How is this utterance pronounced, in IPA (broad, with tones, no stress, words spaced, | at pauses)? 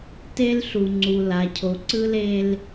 te˦l ɬu˨ŋ͡ǀu˨ la˨cʰo˨ ǀɯ˦le˦l